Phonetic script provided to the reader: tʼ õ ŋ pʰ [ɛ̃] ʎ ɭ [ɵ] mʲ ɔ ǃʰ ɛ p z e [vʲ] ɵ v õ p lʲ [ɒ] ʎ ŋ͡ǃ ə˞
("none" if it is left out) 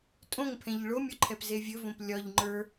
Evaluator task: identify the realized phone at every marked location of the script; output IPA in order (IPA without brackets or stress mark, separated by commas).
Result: ɛ̃, o, vʲ, ɒ